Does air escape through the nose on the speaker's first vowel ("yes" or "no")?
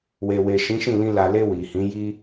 no